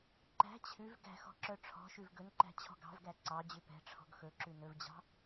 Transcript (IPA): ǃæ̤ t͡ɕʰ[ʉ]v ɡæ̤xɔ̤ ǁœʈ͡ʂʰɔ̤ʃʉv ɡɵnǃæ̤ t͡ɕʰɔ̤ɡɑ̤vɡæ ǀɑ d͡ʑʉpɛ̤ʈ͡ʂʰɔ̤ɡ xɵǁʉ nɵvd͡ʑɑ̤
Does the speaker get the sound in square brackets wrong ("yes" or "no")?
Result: no